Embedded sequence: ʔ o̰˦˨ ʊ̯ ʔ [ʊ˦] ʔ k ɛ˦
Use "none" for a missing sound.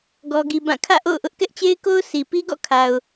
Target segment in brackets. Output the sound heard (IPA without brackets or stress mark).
ʊ˦